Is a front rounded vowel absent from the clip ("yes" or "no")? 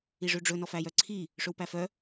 no